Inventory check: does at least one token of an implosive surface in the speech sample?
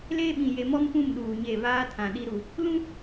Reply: yes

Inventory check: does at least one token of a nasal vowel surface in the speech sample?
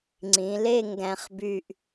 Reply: yes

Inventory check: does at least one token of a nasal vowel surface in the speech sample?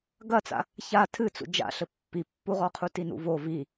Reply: no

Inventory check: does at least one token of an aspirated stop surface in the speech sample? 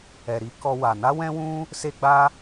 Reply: no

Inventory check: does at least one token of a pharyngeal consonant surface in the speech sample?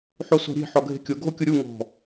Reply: yes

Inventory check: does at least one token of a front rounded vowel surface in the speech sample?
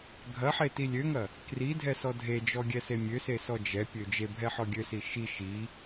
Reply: yes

